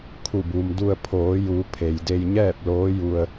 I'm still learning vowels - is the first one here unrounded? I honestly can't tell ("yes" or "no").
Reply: no